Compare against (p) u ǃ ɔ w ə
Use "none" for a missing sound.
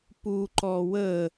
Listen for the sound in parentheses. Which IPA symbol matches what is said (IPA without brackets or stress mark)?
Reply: p